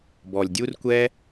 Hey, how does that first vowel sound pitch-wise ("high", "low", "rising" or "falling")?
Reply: low